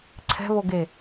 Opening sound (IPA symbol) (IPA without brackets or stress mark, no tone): ǀʰ